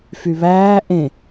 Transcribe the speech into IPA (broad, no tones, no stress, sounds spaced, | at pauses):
f y β æː ʔ ẽ